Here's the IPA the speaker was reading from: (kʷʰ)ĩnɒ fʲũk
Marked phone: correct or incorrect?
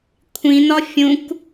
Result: correct